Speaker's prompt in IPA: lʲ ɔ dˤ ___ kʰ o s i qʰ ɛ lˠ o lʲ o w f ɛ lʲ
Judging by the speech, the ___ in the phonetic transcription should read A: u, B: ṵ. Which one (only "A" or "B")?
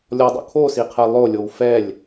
B